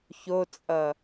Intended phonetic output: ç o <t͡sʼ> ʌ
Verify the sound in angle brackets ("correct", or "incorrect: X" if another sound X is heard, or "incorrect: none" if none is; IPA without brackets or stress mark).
correct